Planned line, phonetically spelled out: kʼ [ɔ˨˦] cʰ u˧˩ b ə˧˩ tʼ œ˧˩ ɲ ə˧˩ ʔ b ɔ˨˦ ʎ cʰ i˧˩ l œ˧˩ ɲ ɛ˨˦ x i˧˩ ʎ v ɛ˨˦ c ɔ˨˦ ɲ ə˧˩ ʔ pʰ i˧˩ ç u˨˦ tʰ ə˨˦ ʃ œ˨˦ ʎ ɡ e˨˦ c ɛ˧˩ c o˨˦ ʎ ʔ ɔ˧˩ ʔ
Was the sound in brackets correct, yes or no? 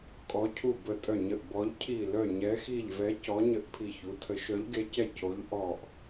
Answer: yes